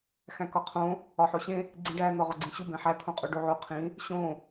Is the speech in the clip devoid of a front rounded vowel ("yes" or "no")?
yes